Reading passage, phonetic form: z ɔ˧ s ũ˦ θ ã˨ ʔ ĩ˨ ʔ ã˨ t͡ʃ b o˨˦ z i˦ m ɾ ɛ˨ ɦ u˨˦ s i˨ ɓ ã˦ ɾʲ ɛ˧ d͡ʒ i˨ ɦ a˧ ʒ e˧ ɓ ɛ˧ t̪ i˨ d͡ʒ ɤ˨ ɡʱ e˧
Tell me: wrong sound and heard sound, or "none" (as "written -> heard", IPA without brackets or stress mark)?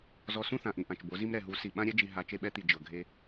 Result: ʒ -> t͡ʃ